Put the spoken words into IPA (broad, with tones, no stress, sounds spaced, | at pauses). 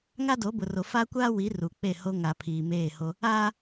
ŋ a˦ d o˨˦ b ʊ˨ r o˨ f a˦ kʷ aː˦ w i˨˦ r u˨ k͡p e˦˨ h o˦ ŋ a˨ pʰ iː˨ m eː˦˨ h o˦ | aː˦